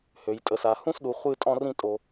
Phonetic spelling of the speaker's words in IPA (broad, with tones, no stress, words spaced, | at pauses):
hø˩jtʼə˩sa˩ hũ˥sɗu˩ χʷɨ˥tʼɔ̃˥rĩ˥ tʼo˩